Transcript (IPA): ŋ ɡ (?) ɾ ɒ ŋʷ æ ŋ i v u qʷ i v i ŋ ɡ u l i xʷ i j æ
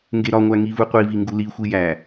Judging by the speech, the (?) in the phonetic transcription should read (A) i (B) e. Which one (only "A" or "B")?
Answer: B